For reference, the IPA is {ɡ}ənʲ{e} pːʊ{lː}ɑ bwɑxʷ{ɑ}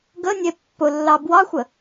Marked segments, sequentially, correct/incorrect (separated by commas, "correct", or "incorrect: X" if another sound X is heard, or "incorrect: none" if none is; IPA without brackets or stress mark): correct, correct, correct, incorrect: ə